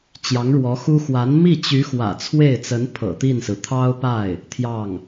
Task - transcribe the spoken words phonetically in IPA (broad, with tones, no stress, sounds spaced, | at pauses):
t͡ɕ j ɑ˧˥ ŋ ɻ w ɔ˧˥ x u˥ x w a˧˥ n m i˥˩ t͡ɕ y˧˥ x w ä̰˨˩ t͡sʰ w e˥˩ ɪ̯ t͡s ə˧˥ n pʰ ɤ̰˨˩ t̪ i˥˩ n s ɹ̩˩ t̪ʰ ɑ˥ ʊ̯ p a˥˩ ɪ̯ | t̪ʰ j ɑ˥˩ ŋ